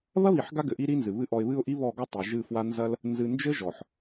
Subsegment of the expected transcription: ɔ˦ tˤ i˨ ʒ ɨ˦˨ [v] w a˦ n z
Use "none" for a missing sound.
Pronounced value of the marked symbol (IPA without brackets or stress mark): f